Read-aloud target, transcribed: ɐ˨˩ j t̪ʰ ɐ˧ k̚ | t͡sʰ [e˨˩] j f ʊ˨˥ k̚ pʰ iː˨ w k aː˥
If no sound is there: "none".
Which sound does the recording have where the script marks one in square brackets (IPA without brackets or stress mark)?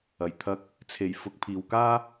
e˨˩